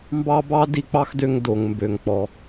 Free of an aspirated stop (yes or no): yes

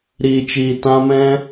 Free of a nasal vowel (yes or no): no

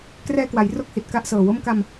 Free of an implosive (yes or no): yes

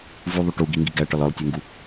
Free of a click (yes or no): yes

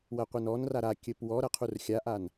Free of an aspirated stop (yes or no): no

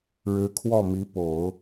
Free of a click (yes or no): yes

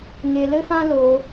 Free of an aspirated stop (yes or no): yes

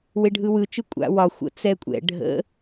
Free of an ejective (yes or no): no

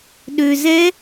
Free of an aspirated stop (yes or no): yes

